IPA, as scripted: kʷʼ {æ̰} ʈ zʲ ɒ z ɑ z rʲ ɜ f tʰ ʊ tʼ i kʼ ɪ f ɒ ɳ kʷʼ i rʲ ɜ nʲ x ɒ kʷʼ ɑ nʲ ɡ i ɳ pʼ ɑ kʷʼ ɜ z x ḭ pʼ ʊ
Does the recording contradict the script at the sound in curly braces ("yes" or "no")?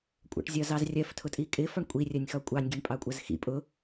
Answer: no